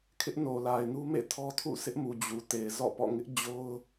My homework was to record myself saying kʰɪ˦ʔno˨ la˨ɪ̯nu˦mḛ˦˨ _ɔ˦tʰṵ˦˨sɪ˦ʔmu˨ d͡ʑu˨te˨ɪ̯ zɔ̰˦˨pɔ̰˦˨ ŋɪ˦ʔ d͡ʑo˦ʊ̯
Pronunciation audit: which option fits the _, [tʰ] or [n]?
tʰ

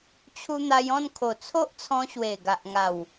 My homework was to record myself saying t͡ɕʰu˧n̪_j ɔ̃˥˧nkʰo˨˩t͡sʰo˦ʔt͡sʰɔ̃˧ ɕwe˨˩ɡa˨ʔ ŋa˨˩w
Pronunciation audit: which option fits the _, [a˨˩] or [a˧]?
a˧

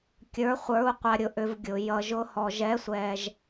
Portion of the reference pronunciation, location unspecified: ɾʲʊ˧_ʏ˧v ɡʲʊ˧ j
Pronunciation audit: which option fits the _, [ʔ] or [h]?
ʔ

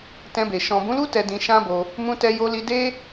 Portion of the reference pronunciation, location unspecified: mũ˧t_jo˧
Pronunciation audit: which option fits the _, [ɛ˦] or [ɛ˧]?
ɛ˧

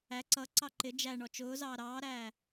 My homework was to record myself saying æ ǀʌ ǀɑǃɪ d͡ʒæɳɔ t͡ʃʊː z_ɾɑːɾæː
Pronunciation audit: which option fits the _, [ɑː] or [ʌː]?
ɑː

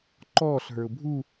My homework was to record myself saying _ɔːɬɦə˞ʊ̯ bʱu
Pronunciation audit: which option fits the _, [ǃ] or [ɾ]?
ǃ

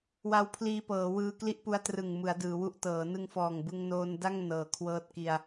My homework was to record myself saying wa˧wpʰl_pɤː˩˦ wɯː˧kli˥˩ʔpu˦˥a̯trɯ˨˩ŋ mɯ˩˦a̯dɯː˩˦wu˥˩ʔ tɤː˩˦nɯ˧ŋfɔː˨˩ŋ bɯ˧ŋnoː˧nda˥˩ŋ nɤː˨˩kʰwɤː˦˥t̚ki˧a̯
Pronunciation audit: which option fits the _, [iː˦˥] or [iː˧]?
iː˧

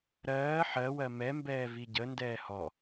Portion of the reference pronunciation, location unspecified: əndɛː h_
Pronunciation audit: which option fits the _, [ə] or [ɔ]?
ɔ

